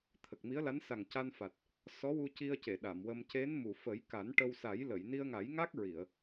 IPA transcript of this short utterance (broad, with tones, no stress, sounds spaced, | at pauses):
t̪ʰ ə˨˩ k̚ m i˧˥ ə̯ l a˧˥ n s a˨˩ ŋ c a˧ n f a˨˩ t̚ | s ɔ˧˥ w u˧ c i˧ ə̯ c e˨˩˨ ɗ a˨˩˨ m w ə˧ m c e˧˥ n m u˨˩˨ f ə˨˩˦ j k a˨˩˦ n ʈ ə˧ w s a˨˩˦ j l ə˨˩˨ j n i˧ ə̯ ŋ a˨˩˦ j ŋ a˦˥ k̚ ɹ i˨˩˨ ə̯